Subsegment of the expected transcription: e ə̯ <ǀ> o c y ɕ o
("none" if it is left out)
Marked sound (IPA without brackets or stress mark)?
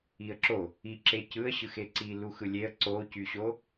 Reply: ǀ